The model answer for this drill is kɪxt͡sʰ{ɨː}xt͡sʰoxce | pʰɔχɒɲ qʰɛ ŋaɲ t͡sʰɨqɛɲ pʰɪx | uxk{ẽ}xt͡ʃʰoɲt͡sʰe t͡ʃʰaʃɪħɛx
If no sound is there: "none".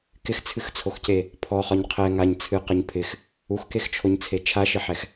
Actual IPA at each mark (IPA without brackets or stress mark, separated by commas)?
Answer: ɨ, e